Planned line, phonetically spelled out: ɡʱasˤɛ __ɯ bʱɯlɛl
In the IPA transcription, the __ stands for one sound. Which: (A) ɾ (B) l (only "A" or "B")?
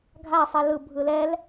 B